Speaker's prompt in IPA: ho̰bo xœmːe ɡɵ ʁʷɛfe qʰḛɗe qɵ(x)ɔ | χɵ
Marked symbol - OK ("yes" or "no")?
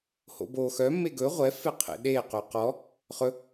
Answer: no